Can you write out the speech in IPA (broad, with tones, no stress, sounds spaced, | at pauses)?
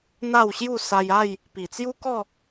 n̪ a˥˧ w ɕ j u˥˧ s a˧ j a˥˧ j | p i˨˩ t͡s j u˦ k ɔ˥˧